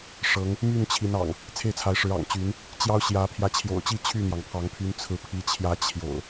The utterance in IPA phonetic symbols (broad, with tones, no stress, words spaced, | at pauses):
ʂɤ˨˦ŋ | my˥˨nt͡ɕʰi˨˦nɑ̰˨˩ŋ | t͡sʰe˥˨ɪ̯t͡sʰa˨˦ɪ̯ʂɻ̩˨˦ ɑ̰˨˩ŋt͡ɕy˨˦n | t͡ɕjɑ˦ʊ̯ɕjä˨˦ pʰjä˨˦t͡ɕʰjo̰˨˩ʊ̯t͡ɕi˥˨ t͡ɕʰy˥˨n̪jɑ˩ŋpʰɑ˨˦ŋpʰy˨˦n t͡sʰɹ̩˨˦pʰi˨˦ t͡ɕʰjä˨˦ t͡ɕʰjo̰˨˩ʊ̯